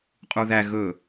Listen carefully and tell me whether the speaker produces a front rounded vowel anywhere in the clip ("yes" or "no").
no